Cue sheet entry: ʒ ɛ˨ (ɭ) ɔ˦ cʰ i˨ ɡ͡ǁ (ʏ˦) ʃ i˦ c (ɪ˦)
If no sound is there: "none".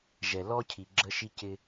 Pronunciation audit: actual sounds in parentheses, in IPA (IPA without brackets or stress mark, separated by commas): l, ə˦, ɪ˦